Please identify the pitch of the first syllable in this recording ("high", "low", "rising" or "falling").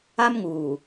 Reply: high